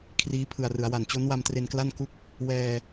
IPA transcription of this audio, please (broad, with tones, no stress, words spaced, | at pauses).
kʰriː˦˥pʰɯ˨˩a̯rɯ˩˦a̯wa˨˩n t͡ɕo˦˥nwa˧mtre˧nkla˥˩n ku˥˩k̚ | wɛː˧